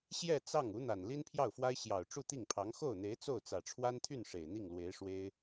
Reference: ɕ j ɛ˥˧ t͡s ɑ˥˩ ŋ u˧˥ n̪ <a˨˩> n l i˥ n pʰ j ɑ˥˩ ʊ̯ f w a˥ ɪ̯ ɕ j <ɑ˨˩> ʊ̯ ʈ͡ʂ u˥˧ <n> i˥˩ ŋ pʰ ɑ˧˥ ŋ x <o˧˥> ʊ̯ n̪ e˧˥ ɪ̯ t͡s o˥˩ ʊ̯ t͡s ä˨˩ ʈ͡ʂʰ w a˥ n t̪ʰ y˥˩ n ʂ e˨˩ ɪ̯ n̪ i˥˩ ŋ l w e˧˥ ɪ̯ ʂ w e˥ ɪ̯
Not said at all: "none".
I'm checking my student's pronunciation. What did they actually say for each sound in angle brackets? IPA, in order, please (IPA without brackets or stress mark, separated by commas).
a˨˩, ɑ˨˩, t̪, o˥˩